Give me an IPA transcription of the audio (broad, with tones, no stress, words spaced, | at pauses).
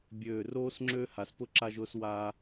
bʲøː˧˩roː˥s ŋ͡ǁøː˥ha˩˧spʊ˥ ǁa˧ʒʊː˧swaː˧